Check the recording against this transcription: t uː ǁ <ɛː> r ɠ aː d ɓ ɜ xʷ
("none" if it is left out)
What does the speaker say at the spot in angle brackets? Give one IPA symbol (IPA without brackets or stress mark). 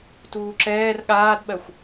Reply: ɛː